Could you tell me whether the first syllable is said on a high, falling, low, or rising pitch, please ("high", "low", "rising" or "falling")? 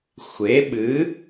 rising